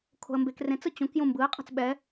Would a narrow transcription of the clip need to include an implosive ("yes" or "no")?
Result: yes